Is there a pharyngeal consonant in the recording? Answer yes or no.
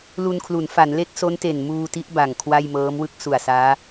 no